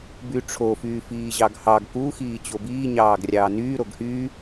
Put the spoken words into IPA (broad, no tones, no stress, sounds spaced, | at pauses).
b y ʈ͡ʂʰ o f yː f iː ʑ ɑ ɡ h ɑ ɡ k u x iː t͡ɕ o b iː ɲ ɑː ɡ rʲ ɑː n yː ɾ o ɡ h y